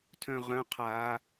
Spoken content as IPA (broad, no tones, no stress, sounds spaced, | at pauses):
tʰ œ̃ ʁ œ̃ qʰ a